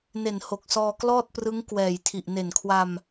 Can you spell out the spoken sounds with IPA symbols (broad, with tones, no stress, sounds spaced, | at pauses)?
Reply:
n e˨˩ n h o˨˩ k̚ s ɔː˧ k l ɔː˥˩ t̚ p r ɯ˦˥ ŋ k w ɛː˨˩ j tʰ i˨˩ ʔ n e˨˩ n kʰ w a˧ m